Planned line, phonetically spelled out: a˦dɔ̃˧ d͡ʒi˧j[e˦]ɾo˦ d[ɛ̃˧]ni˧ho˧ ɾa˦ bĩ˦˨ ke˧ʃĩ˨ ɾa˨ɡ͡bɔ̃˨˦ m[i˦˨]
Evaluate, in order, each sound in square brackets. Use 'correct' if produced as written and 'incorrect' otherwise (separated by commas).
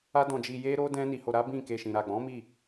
correct, incorrect, correct